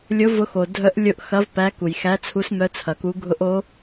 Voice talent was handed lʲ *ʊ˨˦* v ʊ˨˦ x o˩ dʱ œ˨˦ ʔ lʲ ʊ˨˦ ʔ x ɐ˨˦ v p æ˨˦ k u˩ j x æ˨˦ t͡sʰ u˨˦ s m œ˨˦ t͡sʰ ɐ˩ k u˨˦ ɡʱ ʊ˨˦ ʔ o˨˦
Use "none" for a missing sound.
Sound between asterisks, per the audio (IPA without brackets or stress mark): ʊ˨˦